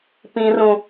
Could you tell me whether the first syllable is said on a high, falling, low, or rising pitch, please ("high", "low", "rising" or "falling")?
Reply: high